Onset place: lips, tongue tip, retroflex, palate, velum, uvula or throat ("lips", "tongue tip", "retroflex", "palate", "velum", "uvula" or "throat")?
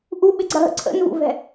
throat